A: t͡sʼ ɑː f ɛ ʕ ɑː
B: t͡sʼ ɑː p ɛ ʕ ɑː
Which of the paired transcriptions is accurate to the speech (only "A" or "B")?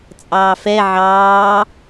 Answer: A